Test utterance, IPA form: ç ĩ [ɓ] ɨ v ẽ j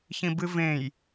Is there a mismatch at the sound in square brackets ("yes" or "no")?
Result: yes